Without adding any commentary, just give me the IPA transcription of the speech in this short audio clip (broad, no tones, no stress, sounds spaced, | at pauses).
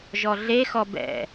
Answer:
ʒ ɔ ɮ e x ɔ b ɛ̰